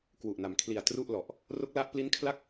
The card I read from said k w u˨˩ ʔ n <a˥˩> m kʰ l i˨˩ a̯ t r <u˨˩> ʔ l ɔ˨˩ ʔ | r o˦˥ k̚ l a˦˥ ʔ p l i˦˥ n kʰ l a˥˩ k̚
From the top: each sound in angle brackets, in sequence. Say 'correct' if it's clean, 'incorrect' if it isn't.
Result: incorrect, incorrect

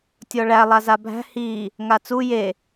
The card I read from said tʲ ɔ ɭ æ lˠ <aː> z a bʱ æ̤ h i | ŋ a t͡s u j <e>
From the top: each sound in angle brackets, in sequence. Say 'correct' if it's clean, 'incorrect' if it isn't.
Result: incorrect, correct

